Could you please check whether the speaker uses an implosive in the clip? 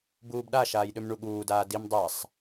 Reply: yes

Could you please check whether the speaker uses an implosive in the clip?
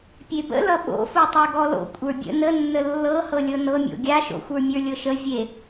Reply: yes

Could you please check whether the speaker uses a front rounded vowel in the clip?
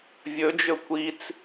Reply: no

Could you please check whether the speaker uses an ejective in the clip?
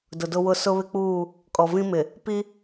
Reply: yes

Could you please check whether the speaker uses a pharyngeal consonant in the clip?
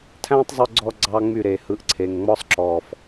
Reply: no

